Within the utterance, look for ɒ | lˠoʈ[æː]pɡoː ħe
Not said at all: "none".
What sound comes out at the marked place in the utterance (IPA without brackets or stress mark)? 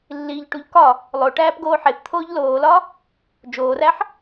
æː